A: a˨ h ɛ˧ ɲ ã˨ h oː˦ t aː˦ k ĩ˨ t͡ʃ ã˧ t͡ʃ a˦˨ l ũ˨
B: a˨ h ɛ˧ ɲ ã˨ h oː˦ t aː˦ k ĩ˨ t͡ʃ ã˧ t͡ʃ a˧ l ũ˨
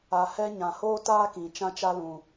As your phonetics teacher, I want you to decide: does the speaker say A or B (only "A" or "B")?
B